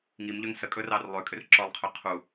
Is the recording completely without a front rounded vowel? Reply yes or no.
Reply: no